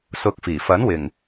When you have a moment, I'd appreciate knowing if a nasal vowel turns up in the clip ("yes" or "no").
no